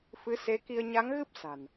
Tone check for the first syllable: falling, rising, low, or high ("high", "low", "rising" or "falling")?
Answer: rising